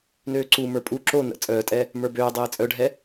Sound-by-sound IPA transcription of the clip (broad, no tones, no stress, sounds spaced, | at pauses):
n øː ǀ u m ə˞ pʼ u ǁ o n ə̰ t͡sʼ œː tʼ ɛ | m ə˞ b øː dˤ eː t͡sʼ œ ɖʱ ɛ